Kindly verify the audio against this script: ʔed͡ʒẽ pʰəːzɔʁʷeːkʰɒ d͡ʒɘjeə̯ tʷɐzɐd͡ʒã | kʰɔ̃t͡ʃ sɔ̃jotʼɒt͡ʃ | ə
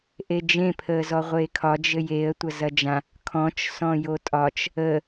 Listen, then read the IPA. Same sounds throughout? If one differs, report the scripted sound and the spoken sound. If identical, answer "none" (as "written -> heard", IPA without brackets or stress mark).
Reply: none